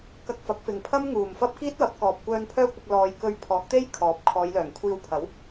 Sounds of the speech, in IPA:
k ɐ˧ k̚ f ɐ˨˥ k̚ f ɪ˨ ŋ pʰ ɐ˥ m ŋ uː˨ m f ɐ˥ p̚ k iː˥ t̚ w ɐ˨˥ p̚ k ɔː˨ p̚ kʷ œː˧ n pʰ œː˥ kʷ ɐ˧ k̚ l ɔː˧ j k ɵ˧ ɥ pʰ ɔː˨˥ k̚ t̪ e˥ j kʰ ɔː˨˥ p̚ kʰ ɔː˨˧ j l œː˨˩ ŋ kʷʰ iː˧ w pʰ ɐ˨˥ w

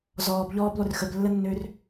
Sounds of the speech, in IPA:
z ɔː b ʎ ɔː b lˠ ʏ r x ə b lː ə nː øː r

